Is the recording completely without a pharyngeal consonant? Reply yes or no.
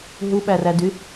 yes